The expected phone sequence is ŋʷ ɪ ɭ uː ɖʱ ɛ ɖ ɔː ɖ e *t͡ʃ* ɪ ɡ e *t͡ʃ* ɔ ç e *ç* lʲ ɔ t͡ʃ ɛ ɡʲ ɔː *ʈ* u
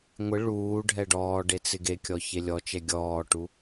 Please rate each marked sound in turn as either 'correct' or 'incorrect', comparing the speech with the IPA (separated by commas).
incorrect, incorrect, incorrect, correct